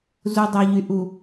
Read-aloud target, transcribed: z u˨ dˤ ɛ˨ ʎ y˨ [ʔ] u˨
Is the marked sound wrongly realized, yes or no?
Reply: no